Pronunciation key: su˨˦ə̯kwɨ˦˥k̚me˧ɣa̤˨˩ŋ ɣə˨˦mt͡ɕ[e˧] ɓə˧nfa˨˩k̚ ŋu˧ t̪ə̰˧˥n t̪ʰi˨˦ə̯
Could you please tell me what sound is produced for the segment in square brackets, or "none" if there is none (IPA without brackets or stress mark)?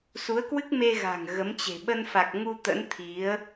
e̤˨˩